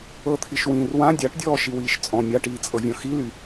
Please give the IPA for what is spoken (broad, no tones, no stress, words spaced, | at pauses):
ɤt̪ʰiʃwĩːr wã dʲaʈdʲɔː ʃiwiːʃt͡sʼɔ̃ mʲaʈiːt͡sʼɤvʲɔ̃ xily